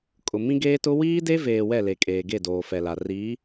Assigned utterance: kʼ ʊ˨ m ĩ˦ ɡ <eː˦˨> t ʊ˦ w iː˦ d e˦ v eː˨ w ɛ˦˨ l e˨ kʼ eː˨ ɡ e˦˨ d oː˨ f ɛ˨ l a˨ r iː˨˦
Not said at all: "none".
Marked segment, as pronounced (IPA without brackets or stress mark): eː˦